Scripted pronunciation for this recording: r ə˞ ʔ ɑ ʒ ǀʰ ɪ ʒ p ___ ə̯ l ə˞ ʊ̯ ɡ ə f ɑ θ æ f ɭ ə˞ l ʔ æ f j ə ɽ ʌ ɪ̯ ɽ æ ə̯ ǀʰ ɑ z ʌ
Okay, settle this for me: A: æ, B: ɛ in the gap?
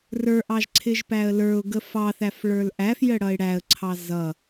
A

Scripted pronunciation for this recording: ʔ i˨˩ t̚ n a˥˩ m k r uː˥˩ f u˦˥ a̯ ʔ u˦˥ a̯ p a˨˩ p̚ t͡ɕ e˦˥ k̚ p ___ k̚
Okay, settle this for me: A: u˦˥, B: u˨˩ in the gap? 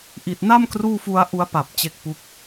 A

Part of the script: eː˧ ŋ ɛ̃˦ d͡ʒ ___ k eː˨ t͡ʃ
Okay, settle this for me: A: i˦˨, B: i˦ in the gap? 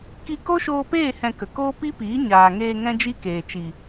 B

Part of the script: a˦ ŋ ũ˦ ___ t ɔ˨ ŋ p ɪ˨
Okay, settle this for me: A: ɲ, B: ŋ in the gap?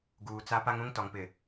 B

